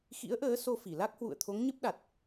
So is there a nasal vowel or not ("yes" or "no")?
no